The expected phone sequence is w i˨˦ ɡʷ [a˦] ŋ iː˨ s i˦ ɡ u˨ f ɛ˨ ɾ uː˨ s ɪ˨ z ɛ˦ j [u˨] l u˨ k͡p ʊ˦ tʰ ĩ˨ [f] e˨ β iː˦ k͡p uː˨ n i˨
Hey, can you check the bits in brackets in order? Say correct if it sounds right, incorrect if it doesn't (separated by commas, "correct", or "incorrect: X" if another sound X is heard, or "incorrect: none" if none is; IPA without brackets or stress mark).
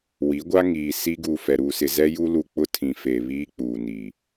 correct, incorrect: u˦, correct